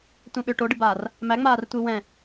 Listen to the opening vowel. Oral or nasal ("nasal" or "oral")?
nasal